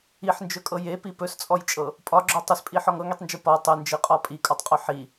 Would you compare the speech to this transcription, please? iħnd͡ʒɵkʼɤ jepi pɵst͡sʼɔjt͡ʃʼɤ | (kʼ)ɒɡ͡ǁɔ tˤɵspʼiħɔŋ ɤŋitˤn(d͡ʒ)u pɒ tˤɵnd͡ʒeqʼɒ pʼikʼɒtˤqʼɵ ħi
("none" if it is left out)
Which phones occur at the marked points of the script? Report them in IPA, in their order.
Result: pʼ, d͡ʒ

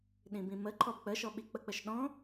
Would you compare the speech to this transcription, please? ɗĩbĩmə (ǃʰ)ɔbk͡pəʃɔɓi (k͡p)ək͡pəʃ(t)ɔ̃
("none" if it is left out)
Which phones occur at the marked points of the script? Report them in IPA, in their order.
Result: ǃʰ, k͡p, ɗ

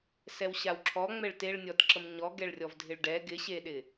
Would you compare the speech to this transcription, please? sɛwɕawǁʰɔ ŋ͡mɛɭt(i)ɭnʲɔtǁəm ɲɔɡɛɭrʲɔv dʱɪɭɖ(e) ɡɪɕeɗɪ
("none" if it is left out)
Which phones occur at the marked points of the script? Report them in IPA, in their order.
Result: e, ɛ

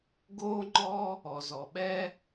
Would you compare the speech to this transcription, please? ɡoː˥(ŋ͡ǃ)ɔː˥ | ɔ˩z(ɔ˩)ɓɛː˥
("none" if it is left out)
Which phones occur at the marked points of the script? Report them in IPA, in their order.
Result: ŋ͡ǃ, ɔ˩

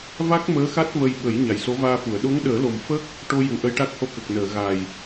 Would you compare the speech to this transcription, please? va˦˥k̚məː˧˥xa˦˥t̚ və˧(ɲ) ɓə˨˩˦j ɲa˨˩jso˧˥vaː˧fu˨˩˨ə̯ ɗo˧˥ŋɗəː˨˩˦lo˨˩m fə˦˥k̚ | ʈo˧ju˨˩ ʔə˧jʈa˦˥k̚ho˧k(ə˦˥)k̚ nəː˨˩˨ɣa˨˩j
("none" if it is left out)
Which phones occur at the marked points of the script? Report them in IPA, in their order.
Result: j, ə˨˩

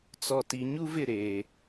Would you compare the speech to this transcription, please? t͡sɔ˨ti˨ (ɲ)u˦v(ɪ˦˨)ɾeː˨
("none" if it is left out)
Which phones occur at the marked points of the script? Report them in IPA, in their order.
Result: ɲ, ɪ˦˨

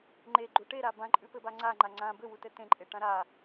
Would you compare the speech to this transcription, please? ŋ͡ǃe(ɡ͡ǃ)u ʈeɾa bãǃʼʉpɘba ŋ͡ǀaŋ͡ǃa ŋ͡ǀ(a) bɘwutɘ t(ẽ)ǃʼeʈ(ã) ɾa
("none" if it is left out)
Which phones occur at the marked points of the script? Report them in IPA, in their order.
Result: ɡ͡ǃ, ã, ẽ, ã

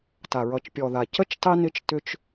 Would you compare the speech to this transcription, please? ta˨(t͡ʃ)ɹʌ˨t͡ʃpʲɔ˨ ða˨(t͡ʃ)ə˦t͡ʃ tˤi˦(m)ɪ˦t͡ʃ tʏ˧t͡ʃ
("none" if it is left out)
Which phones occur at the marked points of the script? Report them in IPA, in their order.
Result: none, c, n

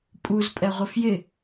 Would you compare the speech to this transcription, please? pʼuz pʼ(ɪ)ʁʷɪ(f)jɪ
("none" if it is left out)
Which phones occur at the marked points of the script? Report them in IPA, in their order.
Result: ɛ, f

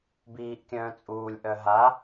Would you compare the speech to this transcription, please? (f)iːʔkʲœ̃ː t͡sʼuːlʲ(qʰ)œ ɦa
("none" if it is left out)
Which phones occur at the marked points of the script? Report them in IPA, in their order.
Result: b, ʔ

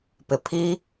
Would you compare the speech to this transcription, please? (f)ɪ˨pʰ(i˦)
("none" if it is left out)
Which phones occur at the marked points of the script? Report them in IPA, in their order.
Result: p, i˦

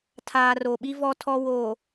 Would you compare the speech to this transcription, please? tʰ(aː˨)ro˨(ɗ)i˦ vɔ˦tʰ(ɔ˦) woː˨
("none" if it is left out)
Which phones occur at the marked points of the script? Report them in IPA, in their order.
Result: aː˨, ɓ, ɔ˦

